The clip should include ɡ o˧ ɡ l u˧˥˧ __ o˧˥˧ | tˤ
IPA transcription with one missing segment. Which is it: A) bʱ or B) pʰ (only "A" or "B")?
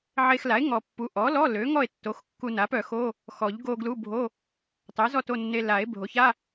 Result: A